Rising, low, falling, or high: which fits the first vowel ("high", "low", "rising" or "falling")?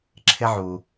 high